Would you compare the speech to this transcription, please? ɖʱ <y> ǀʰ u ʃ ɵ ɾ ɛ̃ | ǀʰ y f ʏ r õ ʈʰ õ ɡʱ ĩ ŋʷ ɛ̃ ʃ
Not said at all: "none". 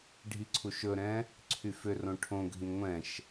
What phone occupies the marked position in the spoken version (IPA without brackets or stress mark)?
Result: i